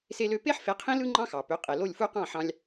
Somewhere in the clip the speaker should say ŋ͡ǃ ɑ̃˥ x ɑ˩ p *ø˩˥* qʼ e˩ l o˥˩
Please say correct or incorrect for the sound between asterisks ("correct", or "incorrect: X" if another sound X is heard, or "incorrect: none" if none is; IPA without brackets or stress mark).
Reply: correct